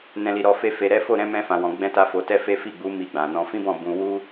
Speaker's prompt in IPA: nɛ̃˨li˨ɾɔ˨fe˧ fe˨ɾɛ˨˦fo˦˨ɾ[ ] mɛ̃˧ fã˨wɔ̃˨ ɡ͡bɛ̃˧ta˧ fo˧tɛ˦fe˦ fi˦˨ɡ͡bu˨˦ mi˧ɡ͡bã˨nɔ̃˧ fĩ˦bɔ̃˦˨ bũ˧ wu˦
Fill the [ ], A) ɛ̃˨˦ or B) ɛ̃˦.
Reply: A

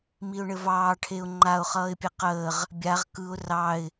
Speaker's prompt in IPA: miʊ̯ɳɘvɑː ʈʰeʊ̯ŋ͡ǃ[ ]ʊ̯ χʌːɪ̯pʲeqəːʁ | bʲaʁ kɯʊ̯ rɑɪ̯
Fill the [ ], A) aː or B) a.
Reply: B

